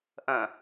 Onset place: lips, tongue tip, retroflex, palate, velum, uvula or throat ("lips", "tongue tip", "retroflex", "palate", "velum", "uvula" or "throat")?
throat